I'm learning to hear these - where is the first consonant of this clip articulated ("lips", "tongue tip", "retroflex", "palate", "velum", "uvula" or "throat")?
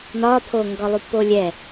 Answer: tongue tip